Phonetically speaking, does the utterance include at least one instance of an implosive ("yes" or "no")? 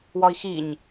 no